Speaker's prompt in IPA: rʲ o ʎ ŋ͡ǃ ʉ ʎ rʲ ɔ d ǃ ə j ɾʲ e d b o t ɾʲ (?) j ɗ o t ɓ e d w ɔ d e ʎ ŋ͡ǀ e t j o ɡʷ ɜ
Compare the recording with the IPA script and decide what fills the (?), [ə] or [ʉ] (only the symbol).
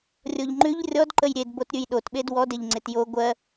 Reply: ʉ